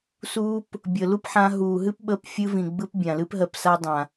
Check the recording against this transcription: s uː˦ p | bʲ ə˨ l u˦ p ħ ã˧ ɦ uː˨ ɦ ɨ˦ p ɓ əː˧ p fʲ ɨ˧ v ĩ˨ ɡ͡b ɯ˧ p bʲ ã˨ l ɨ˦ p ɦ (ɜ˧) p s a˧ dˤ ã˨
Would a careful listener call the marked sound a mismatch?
no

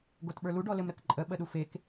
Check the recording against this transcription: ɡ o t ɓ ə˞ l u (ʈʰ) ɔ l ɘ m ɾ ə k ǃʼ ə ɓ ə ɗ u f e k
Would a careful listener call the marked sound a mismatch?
yes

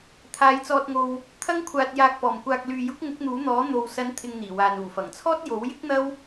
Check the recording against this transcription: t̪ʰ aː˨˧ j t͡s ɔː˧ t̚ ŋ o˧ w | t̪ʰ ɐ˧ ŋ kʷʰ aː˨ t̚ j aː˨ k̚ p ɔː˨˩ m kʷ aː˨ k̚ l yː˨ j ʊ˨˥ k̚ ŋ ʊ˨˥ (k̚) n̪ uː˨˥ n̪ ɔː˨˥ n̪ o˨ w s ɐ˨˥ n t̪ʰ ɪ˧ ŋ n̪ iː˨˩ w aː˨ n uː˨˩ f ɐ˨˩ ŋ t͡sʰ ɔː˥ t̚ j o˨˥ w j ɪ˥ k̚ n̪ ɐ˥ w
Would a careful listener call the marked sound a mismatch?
no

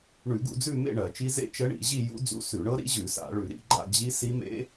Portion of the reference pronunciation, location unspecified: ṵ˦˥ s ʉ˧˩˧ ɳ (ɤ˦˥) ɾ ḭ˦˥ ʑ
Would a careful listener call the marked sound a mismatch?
no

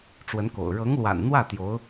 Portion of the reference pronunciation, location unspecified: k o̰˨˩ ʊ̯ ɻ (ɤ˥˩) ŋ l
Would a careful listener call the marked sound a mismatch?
yes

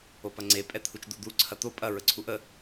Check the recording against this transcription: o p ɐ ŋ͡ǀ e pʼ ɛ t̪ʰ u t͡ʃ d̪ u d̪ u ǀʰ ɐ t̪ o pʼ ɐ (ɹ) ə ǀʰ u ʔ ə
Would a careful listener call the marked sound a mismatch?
no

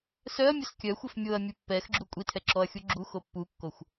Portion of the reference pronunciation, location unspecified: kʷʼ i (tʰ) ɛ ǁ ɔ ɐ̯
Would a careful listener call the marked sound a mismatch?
no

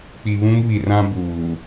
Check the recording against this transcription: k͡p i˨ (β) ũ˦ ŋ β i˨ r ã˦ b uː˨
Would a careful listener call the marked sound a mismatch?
no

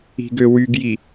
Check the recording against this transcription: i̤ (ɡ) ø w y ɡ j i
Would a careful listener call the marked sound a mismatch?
no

